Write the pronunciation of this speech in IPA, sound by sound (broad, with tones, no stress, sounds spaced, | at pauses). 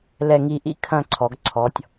l ɛ˥˧ ŋ i˥˧ ʔ ḭ˥ kʰ ɐ̃˥˧ ǀʰ ɔ˩˧ ɡ ǀʰ ɔ˩˧ tʲ